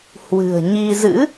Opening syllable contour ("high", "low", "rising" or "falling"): low